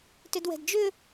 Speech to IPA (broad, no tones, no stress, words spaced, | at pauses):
tʏdwɛ̤dd͡ʒʏ